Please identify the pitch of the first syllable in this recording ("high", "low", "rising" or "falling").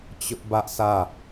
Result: high